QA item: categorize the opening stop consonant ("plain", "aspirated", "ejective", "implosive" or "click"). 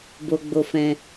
plain